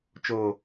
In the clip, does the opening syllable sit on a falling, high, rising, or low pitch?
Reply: low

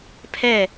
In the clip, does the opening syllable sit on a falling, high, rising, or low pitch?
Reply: falling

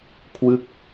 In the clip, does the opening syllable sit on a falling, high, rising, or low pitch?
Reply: falling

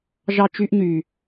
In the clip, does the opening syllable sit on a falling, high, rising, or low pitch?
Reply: high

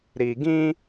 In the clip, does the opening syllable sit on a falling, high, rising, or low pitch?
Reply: low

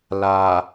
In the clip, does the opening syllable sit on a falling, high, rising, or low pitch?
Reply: low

